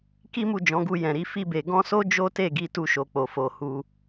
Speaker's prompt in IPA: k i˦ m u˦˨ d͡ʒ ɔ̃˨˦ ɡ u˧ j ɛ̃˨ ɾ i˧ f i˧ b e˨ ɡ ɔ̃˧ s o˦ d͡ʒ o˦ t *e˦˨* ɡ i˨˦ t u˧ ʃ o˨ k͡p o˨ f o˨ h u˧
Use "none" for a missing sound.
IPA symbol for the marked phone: e˦˨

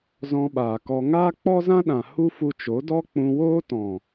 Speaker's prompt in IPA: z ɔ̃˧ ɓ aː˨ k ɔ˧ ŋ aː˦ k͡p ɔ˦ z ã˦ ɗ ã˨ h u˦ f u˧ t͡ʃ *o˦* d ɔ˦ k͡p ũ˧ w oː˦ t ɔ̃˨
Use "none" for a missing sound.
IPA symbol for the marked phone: o˨˦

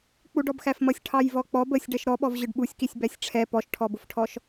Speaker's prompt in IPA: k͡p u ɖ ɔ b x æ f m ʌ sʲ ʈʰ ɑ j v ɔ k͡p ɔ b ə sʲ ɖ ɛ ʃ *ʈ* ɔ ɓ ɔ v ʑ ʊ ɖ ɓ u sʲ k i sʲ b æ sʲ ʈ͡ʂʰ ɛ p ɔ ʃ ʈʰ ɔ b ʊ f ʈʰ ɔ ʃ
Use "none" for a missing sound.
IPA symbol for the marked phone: ɾ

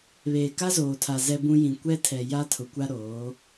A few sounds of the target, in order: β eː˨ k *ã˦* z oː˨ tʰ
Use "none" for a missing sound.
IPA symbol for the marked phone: a˦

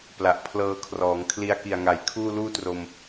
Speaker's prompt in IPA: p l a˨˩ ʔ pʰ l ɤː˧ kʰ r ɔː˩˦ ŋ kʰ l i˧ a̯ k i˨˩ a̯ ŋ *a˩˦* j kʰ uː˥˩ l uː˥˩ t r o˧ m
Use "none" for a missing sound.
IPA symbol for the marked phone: a˨˩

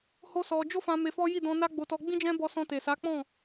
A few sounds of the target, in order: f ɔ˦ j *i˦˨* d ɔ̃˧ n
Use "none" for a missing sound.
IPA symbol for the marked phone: i˦˨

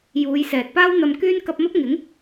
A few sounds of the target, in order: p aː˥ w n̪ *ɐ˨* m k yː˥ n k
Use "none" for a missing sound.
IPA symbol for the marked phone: ɐ˧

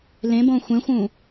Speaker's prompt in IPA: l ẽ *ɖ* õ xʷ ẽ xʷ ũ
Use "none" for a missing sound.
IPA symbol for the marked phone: b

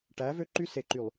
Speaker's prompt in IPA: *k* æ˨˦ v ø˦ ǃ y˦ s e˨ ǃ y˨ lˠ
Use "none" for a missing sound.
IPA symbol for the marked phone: ʈ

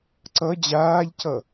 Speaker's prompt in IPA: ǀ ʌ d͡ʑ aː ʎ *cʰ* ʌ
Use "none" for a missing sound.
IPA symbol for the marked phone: cʰ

